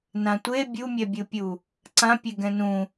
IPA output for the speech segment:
n ã tʷ e bʲ u mʲ ɛ bʲ ɯ pʲ u | ǀ ã pʲ e ɡ ɛ̃ n ũ

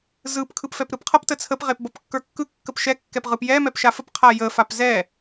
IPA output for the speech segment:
z ɯ p kʰ ɯ p f ɛ p ɾ ɯ p qʰ ʌ p t ə t͡sʰ ə p ʁ e p b ʌ p kː ə˞ kː ɯ kː ə p ʃ ɛ kː ɛ p ʁ ɯ p j ɛ m ɛ p ʃ a f ə p qʰ a j ə f a p z ɛ

